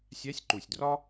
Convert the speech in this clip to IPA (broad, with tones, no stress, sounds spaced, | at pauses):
sʲ æ˧˥ sʲ ǃ u˨˩ sʲ d r ɒ˥